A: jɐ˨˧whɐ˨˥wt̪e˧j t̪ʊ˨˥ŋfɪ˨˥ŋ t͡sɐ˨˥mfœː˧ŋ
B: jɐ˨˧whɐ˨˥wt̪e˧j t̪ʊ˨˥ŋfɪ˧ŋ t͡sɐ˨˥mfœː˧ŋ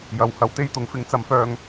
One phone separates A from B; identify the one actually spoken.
A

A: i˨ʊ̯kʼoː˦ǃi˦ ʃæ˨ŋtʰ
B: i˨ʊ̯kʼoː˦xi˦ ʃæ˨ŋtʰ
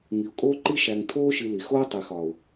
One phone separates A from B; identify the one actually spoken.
A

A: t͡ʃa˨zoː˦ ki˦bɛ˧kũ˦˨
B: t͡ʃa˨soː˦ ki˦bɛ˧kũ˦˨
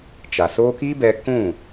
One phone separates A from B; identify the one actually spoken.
B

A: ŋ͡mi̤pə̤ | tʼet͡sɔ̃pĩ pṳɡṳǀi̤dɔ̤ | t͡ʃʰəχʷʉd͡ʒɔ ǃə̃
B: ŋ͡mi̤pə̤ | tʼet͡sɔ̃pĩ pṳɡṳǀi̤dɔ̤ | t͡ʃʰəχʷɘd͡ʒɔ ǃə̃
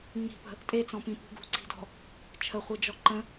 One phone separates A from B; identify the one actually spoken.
B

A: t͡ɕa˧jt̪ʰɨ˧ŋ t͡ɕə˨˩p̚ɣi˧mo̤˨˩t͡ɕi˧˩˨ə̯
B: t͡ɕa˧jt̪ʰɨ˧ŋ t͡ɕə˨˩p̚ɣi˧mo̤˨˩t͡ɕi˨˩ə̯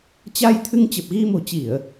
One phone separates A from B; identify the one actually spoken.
A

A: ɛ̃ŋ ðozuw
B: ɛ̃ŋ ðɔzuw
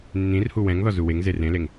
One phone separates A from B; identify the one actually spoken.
B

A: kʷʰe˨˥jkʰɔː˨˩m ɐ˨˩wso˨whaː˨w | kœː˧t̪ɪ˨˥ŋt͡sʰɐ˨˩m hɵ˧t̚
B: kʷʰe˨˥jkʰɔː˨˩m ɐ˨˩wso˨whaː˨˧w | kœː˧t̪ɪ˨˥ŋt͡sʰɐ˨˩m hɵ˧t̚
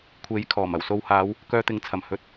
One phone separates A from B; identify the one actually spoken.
B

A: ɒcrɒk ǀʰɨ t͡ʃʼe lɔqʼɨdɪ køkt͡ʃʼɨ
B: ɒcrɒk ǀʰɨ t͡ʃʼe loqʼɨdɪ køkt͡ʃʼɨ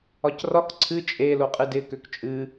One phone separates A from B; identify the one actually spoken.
B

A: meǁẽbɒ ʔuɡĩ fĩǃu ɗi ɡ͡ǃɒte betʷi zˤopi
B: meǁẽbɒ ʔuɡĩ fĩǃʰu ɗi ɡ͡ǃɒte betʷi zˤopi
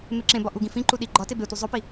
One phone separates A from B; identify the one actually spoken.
A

